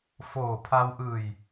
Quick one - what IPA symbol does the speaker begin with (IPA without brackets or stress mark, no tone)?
f